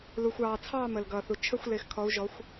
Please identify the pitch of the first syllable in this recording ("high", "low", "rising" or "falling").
low